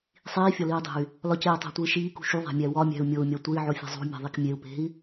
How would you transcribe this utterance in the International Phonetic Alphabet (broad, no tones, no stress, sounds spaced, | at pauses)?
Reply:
sˤ iː fʲ ɒ l iː dˤ e̤ y̯ | l ɒ c eː tˤ æ̤ tʷ iː ʃ iː k ṳ ʃ u ðˤ æ̤ mʲ æ w ɒ mʲ æ̤ u̯ mʲ o u̯ mʲ ɒ tʷ e i̯ ʕ o fʲ e̤ zˤ ṳ mʲ e̤ ðˤ i k mʲ e u̯ p e̤ i̯